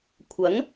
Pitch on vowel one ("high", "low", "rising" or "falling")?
rising